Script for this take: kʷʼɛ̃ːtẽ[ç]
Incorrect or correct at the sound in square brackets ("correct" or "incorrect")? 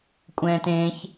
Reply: correct